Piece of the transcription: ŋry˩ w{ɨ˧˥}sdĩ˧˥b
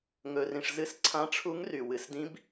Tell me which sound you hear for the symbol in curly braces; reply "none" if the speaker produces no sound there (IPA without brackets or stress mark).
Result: ɨ˩